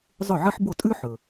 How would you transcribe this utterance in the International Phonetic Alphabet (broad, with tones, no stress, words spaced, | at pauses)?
zˤɵ˥˩ʕɨ˥ħ bo˥˩tʼʉ˥ ħɵ˩